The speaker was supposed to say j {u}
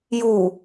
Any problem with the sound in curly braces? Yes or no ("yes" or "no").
no